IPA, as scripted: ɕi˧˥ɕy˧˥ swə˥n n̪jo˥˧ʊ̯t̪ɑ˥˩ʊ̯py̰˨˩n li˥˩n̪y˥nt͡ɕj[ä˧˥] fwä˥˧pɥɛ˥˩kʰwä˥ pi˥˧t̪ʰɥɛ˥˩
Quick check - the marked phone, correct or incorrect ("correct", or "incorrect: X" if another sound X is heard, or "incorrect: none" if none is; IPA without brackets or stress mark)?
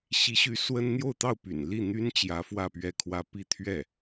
correct